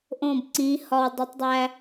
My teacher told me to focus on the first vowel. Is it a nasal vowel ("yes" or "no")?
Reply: yes